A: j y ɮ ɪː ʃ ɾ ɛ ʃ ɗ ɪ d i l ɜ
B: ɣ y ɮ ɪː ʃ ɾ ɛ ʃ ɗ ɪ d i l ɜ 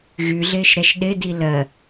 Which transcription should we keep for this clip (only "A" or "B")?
B